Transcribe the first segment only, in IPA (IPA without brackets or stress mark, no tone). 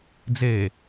d͡z